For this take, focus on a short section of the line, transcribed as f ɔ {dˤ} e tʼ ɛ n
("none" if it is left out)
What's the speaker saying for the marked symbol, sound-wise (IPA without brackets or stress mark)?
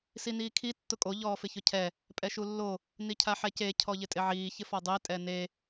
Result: dˤ